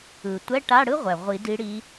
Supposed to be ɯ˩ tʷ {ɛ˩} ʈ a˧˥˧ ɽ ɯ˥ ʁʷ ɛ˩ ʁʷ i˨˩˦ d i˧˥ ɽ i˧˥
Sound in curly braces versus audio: incorrect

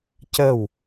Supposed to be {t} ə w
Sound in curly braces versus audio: incorrect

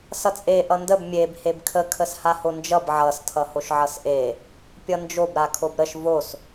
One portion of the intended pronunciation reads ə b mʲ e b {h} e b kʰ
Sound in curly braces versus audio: correct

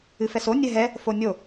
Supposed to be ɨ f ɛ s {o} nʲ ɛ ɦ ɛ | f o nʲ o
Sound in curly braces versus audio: correct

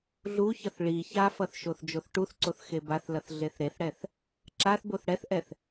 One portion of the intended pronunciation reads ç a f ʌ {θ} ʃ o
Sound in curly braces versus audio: correct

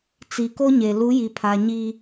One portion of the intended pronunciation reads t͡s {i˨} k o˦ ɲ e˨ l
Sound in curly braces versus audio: correct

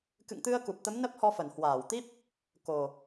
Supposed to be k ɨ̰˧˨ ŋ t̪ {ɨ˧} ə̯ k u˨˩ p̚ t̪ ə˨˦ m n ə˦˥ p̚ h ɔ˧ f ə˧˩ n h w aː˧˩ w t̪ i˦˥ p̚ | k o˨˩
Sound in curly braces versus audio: correct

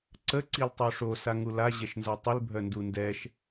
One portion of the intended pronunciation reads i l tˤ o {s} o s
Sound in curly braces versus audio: incorrect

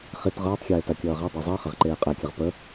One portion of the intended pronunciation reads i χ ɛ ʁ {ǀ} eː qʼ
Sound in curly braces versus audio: incorrect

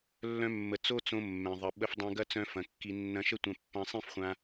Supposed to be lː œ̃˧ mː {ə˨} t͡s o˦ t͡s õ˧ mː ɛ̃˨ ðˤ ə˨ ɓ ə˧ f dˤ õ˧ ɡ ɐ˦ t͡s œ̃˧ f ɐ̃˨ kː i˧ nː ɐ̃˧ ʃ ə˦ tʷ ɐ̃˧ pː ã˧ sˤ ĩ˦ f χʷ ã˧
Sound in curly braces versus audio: correct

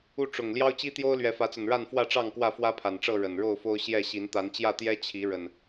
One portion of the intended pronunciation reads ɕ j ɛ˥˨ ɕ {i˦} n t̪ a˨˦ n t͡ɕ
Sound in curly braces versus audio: incorrect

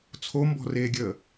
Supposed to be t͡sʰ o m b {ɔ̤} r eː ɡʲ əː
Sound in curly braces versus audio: correct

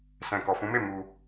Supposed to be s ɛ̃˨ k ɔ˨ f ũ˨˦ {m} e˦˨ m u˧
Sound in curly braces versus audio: correct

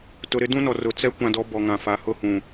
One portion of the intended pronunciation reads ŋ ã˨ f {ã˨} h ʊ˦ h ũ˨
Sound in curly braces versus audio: incorrect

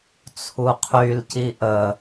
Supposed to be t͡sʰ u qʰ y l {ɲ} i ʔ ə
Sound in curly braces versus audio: incorrect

